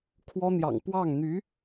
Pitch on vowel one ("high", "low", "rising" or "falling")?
high